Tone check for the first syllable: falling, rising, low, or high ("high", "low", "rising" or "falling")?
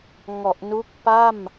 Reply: low